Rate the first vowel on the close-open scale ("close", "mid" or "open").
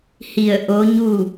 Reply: close